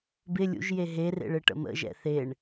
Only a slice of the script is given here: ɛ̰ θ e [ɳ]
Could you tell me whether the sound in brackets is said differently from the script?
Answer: no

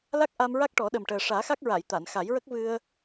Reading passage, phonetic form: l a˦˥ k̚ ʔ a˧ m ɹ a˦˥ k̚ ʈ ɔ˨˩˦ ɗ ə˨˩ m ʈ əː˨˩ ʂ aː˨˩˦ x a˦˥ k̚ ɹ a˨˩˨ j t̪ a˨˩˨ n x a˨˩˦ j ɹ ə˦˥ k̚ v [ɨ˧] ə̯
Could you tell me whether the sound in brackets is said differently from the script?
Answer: no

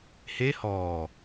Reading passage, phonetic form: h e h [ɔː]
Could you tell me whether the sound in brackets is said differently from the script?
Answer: no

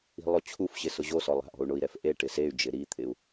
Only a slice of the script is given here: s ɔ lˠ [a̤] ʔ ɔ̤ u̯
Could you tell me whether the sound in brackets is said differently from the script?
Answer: no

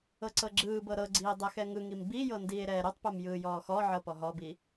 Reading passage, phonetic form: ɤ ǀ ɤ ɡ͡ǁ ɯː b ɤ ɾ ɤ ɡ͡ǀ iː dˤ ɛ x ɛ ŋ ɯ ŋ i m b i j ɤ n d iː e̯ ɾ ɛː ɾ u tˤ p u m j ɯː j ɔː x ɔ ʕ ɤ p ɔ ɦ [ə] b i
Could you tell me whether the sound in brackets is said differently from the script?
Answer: yes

